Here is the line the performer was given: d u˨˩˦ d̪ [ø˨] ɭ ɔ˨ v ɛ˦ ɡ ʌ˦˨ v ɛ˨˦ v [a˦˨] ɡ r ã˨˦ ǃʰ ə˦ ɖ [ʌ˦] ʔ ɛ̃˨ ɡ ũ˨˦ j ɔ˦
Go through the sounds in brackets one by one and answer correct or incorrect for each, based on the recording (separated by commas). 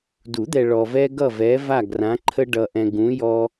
incorrect, correct, incorrect